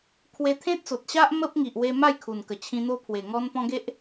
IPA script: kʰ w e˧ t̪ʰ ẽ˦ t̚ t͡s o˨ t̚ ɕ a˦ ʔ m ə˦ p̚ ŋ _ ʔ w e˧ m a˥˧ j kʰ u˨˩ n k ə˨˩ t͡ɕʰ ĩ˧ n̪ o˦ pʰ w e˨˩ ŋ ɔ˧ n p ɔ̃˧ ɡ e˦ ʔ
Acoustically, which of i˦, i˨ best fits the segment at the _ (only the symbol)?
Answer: i˨